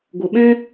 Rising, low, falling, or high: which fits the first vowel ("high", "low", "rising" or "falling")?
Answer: low